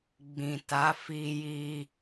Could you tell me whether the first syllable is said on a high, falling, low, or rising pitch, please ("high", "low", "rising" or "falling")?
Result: low